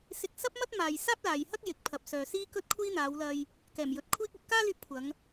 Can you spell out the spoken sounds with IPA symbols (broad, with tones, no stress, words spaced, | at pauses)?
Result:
sɪ˧k̚sɐ˥p̚mɐ˥t̚ maː˧j saː˥p̚laː˨jhɐ˥k̚ jɪ˨˥k̚pʰɐ˨p̚sœː˨ siː˥kɵ˥t̚kʷʰiː˥n̪aː˨˧w lɐ˨j | kɛː˨˩mjɵ˨˥t̚kʷʰiː˥k̚ɵ˨˥t̚ kaː˥lyː˧p̚ kʷʰɐ˨˧ŋ